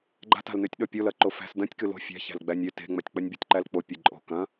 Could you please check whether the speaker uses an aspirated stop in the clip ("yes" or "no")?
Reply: no